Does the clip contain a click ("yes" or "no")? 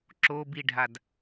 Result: yes